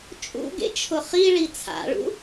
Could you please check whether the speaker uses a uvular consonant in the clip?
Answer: yes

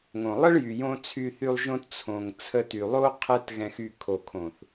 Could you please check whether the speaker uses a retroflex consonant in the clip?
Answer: yes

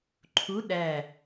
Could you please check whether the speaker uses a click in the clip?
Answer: yes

